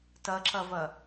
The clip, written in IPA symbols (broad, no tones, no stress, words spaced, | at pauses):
tɐǁɐvɐ